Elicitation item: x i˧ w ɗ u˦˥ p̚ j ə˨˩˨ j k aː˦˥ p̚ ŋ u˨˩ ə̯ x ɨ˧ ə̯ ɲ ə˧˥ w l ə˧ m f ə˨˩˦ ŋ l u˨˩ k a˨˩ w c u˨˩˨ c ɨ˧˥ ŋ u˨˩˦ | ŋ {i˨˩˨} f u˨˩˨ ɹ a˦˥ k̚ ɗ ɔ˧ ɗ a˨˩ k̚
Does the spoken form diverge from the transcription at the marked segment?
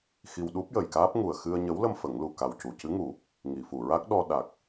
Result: no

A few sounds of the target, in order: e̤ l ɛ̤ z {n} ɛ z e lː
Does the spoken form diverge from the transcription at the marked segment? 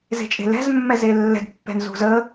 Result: yes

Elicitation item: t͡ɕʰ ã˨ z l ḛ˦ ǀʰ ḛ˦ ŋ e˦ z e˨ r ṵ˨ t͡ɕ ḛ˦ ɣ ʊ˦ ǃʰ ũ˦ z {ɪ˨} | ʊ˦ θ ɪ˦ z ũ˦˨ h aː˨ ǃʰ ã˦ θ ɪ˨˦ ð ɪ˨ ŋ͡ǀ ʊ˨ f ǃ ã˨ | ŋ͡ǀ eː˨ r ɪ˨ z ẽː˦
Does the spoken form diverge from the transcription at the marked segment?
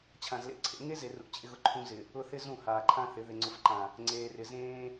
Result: no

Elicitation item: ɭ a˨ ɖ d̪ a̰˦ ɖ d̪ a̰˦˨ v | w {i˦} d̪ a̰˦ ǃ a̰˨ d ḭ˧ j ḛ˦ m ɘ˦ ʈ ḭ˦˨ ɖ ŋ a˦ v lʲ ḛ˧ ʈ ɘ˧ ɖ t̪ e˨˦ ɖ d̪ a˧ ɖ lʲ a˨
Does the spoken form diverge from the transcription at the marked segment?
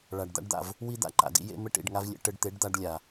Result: no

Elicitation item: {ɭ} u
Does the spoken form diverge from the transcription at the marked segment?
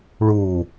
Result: no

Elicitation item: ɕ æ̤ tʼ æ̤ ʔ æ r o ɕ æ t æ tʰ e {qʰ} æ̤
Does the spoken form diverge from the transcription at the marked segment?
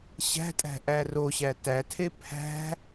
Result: yes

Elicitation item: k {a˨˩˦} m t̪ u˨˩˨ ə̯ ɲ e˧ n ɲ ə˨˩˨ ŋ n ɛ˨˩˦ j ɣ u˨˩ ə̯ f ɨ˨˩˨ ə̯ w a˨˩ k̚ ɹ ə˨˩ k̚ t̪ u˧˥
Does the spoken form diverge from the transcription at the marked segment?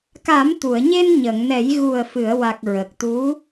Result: no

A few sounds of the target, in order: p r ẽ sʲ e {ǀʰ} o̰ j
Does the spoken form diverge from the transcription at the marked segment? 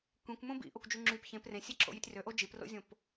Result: yes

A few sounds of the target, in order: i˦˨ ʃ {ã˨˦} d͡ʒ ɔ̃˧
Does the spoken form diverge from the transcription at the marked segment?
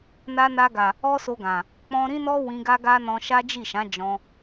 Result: no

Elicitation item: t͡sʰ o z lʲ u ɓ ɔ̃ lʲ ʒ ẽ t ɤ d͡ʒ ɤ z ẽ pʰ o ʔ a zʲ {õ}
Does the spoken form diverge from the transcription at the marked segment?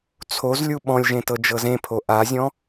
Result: yes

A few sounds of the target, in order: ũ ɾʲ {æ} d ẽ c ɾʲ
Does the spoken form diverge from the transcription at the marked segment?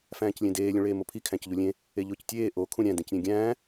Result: yes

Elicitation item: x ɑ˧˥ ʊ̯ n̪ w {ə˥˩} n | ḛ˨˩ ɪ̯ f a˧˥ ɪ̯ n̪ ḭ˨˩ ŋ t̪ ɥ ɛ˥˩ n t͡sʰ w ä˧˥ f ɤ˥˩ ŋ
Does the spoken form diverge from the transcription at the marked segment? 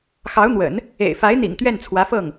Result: yes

